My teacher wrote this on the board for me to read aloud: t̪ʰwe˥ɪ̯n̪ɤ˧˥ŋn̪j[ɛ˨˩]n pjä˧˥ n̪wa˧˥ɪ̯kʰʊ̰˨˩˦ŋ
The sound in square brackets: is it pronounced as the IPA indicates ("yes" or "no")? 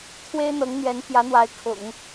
no